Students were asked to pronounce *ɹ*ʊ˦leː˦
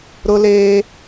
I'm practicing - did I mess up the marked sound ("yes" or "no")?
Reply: yes